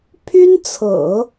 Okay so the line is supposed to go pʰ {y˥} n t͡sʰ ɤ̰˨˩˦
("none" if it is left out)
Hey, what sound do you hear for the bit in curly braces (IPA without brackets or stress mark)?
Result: y˥